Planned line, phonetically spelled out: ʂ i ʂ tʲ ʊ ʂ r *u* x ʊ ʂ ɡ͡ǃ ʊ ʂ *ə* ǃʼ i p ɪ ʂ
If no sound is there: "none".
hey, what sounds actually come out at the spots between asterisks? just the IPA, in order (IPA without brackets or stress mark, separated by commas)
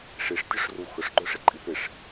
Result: u, ɪ